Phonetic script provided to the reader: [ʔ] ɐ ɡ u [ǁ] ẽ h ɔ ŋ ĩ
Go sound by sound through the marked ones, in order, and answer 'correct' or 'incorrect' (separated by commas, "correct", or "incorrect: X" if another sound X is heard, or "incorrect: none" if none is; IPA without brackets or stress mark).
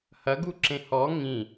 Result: incorrect: h, correct